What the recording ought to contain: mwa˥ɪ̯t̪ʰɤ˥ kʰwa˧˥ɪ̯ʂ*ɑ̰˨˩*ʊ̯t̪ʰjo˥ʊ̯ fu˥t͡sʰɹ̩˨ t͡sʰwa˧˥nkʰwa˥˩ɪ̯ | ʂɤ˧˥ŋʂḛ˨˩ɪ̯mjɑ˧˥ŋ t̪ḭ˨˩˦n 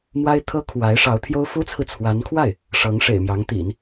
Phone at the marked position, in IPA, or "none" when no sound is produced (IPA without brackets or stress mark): ɑ˧˥